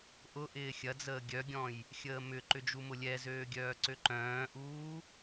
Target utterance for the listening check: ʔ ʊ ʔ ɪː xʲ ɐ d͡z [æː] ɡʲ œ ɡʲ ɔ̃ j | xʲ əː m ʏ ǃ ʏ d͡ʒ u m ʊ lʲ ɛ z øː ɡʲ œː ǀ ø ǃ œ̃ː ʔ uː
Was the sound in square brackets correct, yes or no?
no